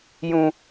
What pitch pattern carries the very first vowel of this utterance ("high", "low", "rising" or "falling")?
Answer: low